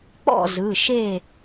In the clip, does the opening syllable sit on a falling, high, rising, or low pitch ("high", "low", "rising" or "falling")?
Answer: falling